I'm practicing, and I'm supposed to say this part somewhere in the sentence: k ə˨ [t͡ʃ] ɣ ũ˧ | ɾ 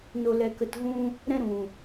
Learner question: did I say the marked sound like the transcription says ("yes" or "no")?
no